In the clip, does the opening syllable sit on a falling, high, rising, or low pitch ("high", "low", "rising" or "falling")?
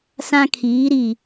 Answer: high